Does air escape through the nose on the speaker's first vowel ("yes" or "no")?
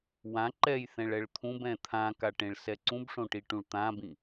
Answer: yes